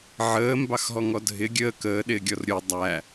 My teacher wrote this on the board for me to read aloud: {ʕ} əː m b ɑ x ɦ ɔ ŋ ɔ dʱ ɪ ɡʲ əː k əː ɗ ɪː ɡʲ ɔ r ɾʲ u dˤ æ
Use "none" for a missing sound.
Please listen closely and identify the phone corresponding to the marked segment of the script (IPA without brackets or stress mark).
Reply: ʕ